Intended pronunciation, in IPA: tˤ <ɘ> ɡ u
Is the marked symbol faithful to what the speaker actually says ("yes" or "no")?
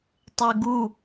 yes